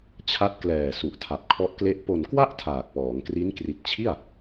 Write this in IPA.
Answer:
t͡ɕʰ a˦˥ t̚ k l ɛː˨˩ s u˨˩ ʔ tʰ a˨˩ p̚ kʰ ɔ˦˥ ʔ k l e˥˩ ʔ p o˨˩ n k w a˥˩ ʔ tʰ aː˨˩ k̚ p ɔː˩˦ ŋ k r i˦˥ n k r i˨˩ t̚ t͡ɕʰ i˥˩ a̯

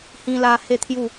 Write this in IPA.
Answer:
h ĩ˧ l a˧ h e˥˧ t̪ʰ j u˥˧

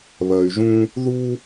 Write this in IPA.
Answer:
β ɜ˨ y̯ ʒ ũ˦ | ð u˦

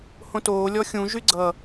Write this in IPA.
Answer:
h õ t oː lʲ ɔ xʲ ũ ʒ y ɡ͡ǀ ʌ

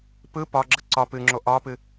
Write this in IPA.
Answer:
p ɯ p ɒ ɡ͡ǁ ə ǀ ɒ p ɨ ŋ͡ǁ o ʔ ɒ p ɨ

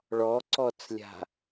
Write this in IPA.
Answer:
ɭ ɔ ǀ ɔ t͡s lʲ a̤

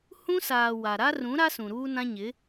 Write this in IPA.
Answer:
h ũ˦ s aː˨ w a˨ ɾ a˦ r ũ˨˦ ɾ a˦ s ũ˨ ɾ uː˦ n ã˦ ɲ ɪ˨˦

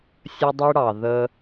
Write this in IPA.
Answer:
sʲ ə˧ dˤ i˧ ɽ ɑ˨ ð ə˧

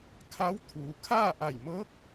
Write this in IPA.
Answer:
kʰ a˧˥ w t̪ʰ uː˩˧ kʰ aː˥˨ ʔ a˧˩ j m ɤː˧˥ k̚

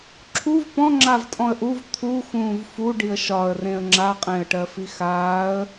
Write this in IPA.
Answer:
ǁʰ u v p ɔ̃ ŋ͡ǁ a v tʼ ɔ̃ ə̯ ʔ u v t̪ʰ u x ũː v f u ɖ i ə̯ ʃ ɒ ə̯ r ẽ ə̯ ŋ͡ǁ a qʼ ẽ ə̯ ʈ ɜ f i x aː ə̯

